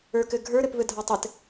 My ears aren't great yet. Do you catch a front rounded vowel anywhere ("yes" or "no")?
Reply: no